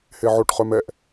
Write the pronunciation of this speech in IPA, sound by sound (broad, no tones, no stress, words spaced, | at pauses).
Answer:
heʕoʈ χœmɛʔ